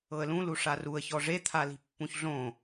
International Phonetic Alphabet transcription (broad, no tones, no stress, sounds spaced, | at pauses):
ɤ ə̯ l ũ l u ʂ a r u ə̯ ç ɔ ʐ e t̪ʰ a l i̤ pː ũ ç ɮ õ